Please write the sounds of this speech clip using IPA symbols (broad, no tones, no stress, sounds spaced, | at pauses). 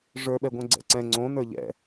ʐ ə˞ ɓ ɛ ɡʷ ɛ̃ ɡ͡ǀ ɛ̰ ǀ ɛ̃ ŋ͡ǀ õ n ə˞ ʎ ɛ̰